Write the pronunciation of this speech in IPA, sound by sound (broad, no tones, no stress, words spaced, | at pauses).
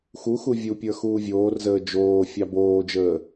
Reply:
xu xuvʲupʲə˞ xuːvʲoːrzəː d͡ʒoː fʲɑboːd͡ʒəː